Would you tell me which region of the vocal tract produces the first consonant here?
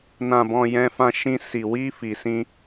tongue tip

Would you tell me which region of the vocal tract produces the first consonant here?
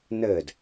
tongue tip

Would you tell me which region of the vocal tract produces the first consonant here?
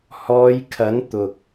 throat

